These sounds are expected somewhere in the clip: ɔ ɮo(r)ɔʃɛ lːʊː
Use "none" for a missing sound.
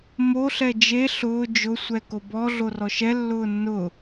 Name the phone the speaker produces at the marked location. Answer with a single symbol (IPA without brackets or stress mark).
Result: r